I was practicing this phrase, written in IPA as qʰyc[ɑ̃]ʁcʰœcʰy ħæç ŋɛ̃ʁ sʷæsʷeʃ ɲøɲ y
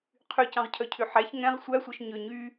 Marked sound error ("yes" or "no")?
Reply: no